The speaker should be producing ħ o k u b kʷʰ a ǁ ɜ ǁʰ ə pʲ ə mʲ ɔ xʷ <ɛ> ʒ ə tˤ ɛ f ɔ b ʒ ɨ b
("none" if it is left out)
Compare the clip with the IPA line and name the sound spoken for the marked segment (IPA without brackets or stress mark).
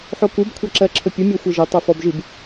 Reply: ə